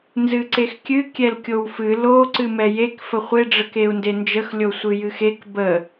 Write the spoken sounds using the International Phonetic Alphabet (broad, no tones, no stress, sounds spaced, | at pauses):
n z ɨ ǀ e x kʲ ɨ kʲ ɛ l kʲ o w f ɨ l o ǀ ɨ m ɛ j e k f ə χʷ e ɖ͡ʐ ə k e u̯ n d e n d͡ʒ ə x lʲ o sʷ ɨ j ɨ x e k b ə